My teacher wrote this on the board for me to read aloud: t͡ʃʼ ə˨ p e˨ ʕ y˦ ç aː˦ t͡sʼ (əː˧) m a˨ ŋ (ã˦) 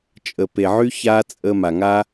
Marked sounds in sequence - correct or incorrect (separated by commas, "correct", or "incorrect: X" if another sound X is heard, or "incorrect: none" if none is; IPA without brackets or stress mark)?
correct, incorrect: a˦